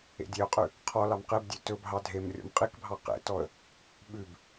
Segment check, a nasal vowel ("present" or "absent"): absent